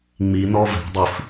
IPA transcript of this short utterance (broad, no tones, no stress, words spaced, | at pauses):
ŋ͡mi nɔvɛ̤dˤif